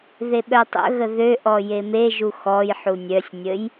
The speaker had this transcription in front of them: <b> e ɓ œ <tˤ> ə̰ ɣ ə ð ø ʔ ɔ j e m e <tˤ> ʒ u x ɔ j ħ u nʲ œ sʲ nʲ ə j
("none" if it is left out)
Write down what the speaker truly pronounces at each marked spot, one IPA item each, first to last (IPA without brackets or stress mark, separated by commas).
ð, tˤ, none